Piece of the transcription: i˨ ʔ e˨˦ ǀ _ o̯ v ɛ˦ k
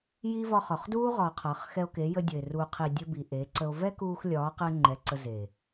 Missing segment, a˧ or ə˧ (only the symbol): ə˧